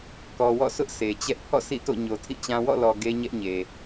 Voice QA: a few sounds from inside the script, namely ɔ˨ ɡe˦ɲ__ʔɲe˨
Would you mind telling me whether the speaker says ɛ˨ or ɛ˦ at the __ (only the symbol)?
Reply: ɛ˦